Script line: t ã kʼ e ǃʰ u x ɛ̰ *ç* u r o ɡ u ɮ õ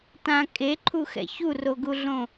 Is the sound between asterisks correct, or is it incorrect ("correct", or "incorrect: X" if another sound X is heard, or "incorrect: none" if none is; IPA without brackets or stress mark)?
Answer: correct